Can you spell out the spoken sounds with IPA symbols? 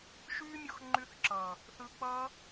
ʃ yː˦ mʲ ɔ˧ x ŋ͡ǃ y˧ θ ǁ ʌː˨ | θ ɯ˧ k͡p ʌː˦

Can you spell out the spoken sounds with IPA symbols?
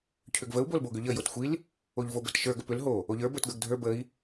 cʰ ʏ ɡ v ə u̯ b o l b o ɡ ʏ ʎ ə j o t xʷ i l | o ʎ v o b ə t ʃ ə˞ ɡ ə p ʏ l ɦ o | o ʎ ə˞ b ə˞ t ɡ ə˞ ɡ dʱ ə˞ b ə i̯

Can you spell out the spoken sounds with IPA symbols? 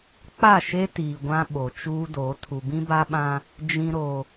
k͡p a˦˨ ʃ e˦ t iː˨ ɡʷ ã˦ ɓ o˨ t͡ʃ uː˦ d o˨˦ tʰ u˨ b ĩ˦ b a˦ ɓ ã˦ | d͡ʒ ĩ˨ ɾ o˨

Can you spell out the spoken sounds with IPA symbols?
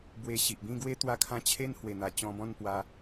b w e˧ ɕ i˨ ʔ b ĩ˥˧ ɡ w e˦ t̪ w a˥˧ kʰ ã˦ t͡ɕʰ e˦ n h w e˨˩ n̪ a˨˩ t͡ɕ ɔ̃˧ b ɔ̃˥˧ n p w a˧

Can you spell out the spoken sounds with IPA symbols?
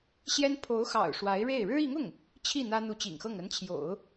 ɕ j ɛ˥ n pʰ o˧˥ ʊ̯ x ɑ̰˨˩ ʊ̯ ʂ w a˧˥ ɪ̯ ɻ e˥˩ ɪ̯ ɻ ɻ̩˥ i˧˥ ŋ ʊ˥˩ ŋ | t͡ɕʰ i˥˩ n̪ ä˥ n̪ u˧˥ t͡ɕ ḭ˨˩ ŋ x ɤ˥˩ ŋ ə˧˥ n t͡ɕʰ j o̰˨˩˦ ʊ̯

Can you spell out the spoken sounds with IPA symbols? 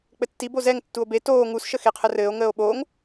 k͡p ɘ tː i b o z ɛ ŋ tː u o̯ b e t oː ŋ u s ʃ ə x e qʰ ə r ɘː o̯ ŋ əː o̯ ɓ oː ŋ

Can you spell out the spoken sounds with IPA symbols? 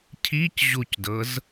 cʰ i c ʑ u c d ɤ z

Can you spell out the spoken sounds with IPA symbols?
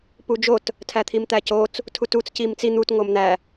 p u d͡ʒ o t | tʰ æ t̪ʰ i m t̪ æ c o t͡s | tʰ u t u t͡s c i m t͡s i n̪ u t ŋ o m n̪ æ

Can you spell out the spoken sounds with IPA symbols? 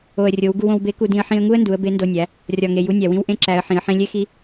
o˩ ə̯ rʲ o˩˧ w ɡ u˧ w õ˧ w b e˧˥ k u˧ d ĩ˧ ə̯ ħ ĩ˧ ə̯ ŋ u˥ ə̯ n d u˩˧ ə̯ b e˧˥ n d o˧ nʲ æ˩˧ | rʲ ɒ˩ ŋ e˩ j u˧˥ nʲ æ˩ w ĩ˧ w ʔ ẽ˥ ǁ æ˩˧ ə̯ ħ ĩ˩˧ ə̯ ħ ẽ˥ lʲ e˥ x i˧˥

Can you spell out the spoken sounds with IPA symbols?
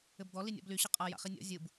ɘ b d̪ ɔ l i nʲ ɔ̰ b l y ɕ ɘ qʼ a j a̰ χ i nʲ ɔ̰ zʲ ɯ b

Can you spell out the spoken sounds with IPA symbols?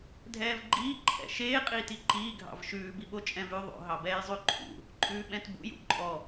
dʱ ɛː v ɡ͡ǃ iː ǃʰ ɛ̰ ʃ eː qʼ iː t i ǃ iː ɡʱ ɑ̰ v ʃ ʉː b i ɓ o t͡ʃʼ ɛ̃ v ʉ ðˤ o̰ ɦ ɑ b ɛː j zˤ ʉ ǃʰ ṵ | ǃʼ ʉː ɓ ɛ̃ t b ṵ j ṵ ǃʼ ɔ

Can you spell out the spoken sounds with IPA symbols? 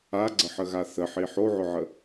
a ɡ͡ǀ ə ħ ə ɣ a θ ə ħ i ħ o ʕ ʊ ʕ ə

